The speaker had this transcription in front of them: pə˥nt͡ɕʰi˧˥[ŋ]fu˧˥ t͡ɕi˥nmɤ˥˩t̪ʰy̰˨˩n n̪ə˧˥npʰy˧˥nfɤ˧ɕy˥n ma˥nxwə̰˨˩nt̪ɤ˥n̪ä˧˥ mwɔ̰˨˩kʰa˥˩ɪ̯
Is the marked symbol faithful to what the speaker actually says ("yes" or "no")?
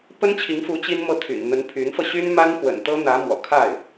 yes